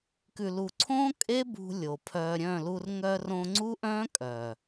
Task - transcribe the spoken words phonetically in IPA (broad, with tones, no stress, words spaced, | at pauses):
kʉ˨lu˨ǀʰõː˦ kʼe˦bṳ˧ lʲo˨pʰœː˧ɾʲœ̃˦˨ lu˧r ŋœ˧rõ˧ŋ͡ǀu˦ʔœ̃ː˦ kʼœ˨